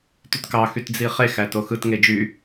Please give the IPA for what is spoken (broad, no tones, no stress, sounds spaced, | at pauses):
t y t k ɑ x y t d͡z i χ e x æ t o x ɯ t ŋ e d͡ʒ y